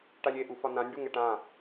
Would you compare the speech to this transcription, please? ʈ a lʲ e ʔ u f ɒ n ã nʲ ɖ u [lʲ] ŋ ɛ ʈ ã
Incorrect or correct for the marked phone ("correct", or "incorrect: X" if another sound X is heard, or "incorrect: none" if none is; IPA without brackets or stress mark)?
incorrect: none